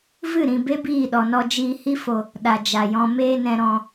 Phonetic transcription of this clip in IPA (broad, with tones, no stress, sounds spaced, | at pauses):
v ɨ˦˨ ɾ ĩ˨ b e˦ b iː˦˨ ɗ ɔ˨ n ɔ˧ d͡ʒ iː˧ h i˦ f o˨ | ɗ a˨ d͡ʒ a˨ j ɔ̃˧ m eː˧ n ɛ̃˨ ɾ ɔ̃˨